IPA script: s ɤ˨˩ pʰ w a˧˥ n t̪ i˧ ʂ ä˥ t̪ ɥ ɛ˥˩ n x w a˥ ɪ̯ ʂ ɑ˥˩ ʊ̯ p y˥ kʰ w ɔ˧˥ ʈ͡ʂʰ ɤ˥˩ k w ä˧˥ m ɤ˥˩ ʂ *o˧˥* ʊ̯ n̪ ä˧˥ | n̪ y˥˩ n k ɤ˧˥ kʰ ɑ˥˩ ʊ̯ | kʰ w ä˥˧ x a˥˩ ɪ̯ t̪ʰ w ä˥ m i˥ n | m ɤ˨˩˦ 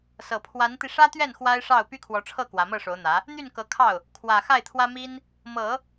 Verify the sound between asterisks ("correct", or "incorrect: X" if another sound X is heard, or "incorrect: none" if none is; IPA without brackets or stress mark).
correct